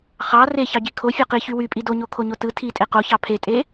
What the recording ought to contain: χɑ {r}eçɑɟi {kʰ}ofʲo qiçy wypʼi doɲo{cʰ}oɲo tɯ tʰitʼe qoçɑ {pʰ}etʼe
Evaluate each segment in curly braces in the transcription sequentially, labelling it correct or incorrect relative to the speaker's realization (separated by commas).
correct, correct, incorrect, correct